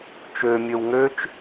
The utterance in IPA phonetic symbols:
t͡ʃ ø mʲ ø w ŋ ø t͡ʃ

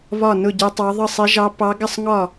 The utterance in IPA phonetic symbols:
β ɒ˥˨ n ʊ˥˨ ɟ i˧˥ tˤ ɑ˧˥ ðˤ ə˥˨ sˤ i˧˥ ʒ ɑ˧˥ pː ɑ˧˥ ɡ ɪ˥˨ sˤ ŋ ɒ˥˨

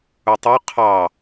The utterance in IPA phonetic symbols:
u tˤ o qʰ ɑ

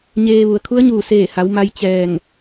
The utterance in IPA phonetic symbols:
ɲ eː˧ ʋ u˩ ə̯ kʰ u˧˥ ə̯ ɲ uː˧˩ s eː˧˩ h a˩˧ w m a˧ j t͡ɕ ɛː˧˩ ŋ

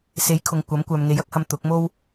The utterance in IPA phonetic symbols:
s e˨˥ j kʰ ʊ˨ ŋ kʷ ɐ˨˥ m kʷ œː˨ m ŋ e˨˥ j ɐ˧ k̚ h ɐ˧ m t̪ ʊ˨˥ k̚ m o˥ w

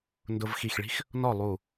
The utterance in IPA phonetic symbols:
n d ʊ˧ v x i˧˩ x ɭ i̤˥ x | n ɔ˥˨ lˠ u˧˩

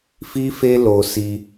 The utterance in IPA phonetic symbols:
f i˦ f e˦ l o˧ s i˧

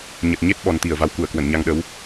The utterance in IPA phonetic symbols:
ɲ ə˨˩ t̚ ɲ e˦˥ t̚ ɓ ɔ˨˩ n t̪ i˧˩ ə̯ v a˨˩ w k u˧˩ ə̯ k w ə˧˩ n ɲ a˧ ŋ ɗ ə˨˦ w

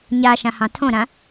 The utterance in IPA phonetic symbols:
ɲ a ʃ ã h ɑ̃ tʰ õ ɾ ã

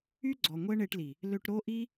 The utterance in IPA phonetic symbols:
y˦ ɡ͡ǀ ɔ˨ ŋʷ ɛ˦ ɳ e˧ ʈ l i˨ | l ø˧ ʈ ɾ o˦ ʔ i˦

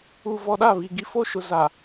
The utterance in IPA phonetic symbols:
u˨ v ɔ˨ ɗ a˦˨ β i˨ ɡ i˦ f o˦ ʃ ʊ˨ z a˨

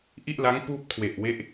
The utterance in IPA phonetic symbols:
ʔ i˥˩ ʔ l a˦˥ ŋ p uː˥˩ p̚ kʰ w e˨˩ ʔ w e˦˥ ʔ

